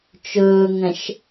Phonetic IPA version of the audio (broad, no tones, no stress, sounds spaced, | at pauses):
t͡ʃ ʊː ŋ ə̃ ʃ